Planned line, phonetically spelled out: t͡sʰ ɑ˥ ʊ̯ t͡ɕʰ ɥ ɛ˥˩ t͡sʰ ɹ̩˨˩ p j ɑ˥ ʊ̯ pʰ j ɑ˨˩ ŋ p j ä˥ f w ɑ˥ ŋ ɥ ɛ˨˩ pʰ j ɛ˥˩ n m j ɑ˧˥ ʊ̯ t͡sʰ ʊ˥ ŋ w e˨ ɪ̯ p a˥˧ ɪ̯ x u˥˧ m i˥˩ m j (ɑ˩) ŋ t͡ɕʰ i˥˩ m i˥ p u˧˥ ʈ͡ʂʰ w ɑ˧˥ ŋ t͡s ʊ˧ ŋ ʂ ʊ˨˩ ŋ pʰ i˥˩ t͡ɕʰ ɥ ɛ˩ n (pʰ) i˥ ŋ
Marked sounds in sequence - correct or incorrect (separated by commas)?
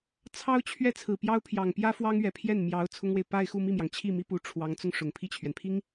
correct, correct